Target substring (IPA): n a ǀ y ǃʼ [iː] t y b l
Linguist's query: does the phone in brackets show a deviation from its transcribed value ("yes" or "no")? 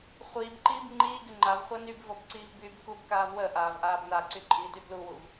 no